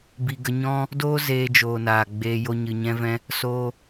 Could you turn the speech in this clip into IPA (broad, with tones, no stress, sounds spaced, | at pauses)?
b i˧ ɡ ə˧ ɲ ɔ̃˦ | d oː˦ z eː˧ d͡ʒ oː˨ n aː˨ ɡ͡b eː˧ j o˧ ɲ ɨ˨ ɲ ɛ̃˧ v ɛ̃˧ | s oː˧